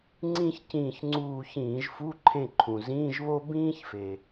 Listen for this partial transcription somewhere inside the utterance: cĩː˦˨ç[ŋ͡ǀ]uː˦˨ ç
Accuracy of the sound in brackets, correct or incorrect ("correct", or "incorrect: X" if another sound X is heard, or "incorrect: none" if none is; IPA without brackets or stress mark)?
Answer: correct